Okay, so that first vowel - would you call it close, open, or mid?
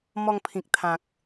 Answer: mid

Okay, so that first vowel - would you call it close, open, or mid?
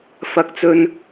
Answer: open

